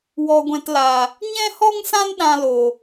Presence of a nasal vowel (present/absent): present